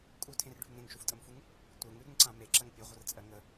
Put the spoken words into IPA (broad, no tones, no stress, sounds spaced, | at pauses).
kʼ u tʰ ẽ r ɖʱ ʉ ŋ ɾ ẽ ŋ ʃ u f tʼ ə m f u ŋ | tʷ ɜ ŋ ʉ ɾ ʉ ŋ ǀ ã m e ǁ ɜ ŋ pʲ ʉ ʁʷ ə r t͡sʼ ɜ ŋ ə